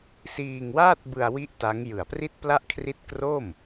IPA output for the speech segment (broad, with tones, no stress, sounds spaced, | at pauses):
s iː˧ ŋ w aː˥˩ t̚ b ɯ˧ a̯ w i˥˩ ʔ t a˦˥ ŋ j ɯ˨˩ a̯ p r i˥˩ t̚ p l a˥˩ ʔ kʰ r i˥˩ t̚ k r o˥˩ m